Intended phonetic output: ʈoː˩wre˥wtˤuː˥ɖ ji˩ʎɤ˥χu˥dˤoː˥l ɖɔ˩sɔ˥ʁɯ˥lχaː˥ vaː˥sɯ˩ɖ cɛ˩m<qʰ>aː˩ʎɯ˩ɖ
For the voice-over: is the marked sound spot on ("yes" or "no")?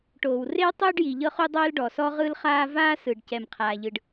yes